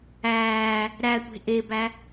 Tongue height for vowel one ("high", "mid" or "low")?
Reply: low